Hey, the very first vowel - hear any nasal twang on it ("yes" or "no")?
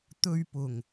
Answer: no